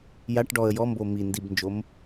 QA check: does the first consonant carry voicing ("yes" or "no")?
yes